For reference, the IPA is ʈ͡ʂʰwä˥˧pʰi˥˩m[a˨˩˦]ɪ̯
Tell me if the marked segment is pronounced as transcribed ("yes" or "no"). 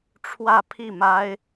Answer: no